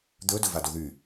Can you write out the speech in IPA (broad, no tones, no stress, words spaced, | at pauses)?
d̪ɵ dɵvadoðy